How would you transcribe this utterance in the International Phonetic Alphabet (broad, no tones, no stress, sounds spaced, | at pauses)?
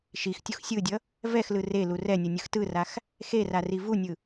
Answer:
ʃ i x tʲ u x sʲ ɯ dʲ ʌ | v ɛ x l ɯ r e l u r ɛ nʲ ʌ nʲ ɯ x t ɯ r a x | x e r a r i v u nʲ ɯ